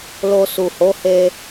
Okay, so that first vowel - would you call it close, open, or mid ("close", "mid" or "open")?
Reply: mid